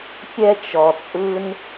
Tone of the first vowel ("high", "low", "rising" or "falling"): high